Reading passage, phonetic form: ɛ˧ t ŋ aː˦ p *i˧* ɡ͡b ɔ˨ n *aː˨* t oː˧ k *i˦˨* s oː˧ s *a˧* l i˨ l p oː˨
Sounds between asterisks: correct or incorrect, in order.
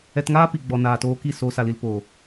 incorrect: i˨, correct, correct, incorrect: a˨

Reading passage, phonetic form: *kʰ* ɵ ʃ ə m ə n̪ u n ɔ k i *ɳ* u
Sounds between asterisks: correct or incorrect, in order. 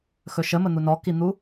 incorrect: x, incorrect: n̪

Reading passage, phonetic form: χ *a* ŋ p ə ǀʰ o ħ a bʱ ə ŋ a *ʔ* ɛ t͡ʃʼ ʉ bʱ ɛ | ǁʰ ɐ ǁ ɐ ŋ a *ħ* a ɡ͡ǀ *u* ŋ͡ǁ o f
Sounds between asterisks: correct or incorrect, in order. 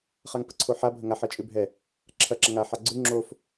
correct, incorrect: ħ, correct, incorrect: ʉ

